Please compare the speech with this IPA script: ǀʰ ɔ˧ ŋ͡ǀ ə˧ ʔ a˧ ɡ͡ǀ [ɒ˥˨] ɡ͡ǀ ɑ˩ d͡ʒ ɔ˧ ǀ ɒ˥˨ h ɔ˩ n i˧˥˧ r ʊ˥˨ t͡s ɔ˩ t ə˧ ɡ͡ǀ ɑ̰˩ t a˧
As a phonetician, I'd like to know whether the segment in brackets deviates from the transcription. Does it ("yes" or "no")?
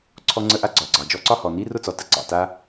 yes